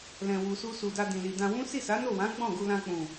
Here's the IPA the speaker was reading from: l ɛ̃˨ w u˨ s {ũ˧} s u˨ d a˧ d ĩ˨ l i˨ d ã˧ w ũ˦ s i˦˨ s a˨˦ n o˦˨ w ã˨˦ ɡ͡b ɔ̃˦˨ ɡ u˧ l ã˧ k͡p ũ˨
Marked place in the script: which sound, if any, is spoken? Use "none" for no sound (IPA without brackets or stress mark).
u˧